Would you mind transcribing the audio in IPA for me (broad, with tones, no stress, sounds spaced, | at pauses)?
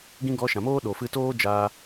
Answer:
ɡ ĩ˦ ɡ ɔ˧ ʃ ã˨ m oː˦ ɗ o˨ f ɨ˦ t oː˦ d͡ʒ aː˧